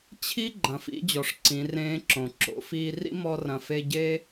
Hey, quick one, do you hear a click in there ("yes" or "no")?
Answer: yes